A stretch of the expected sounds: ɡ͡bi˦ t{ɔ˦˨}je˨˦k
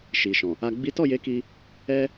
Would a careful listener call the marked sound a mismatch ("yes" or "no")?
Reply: no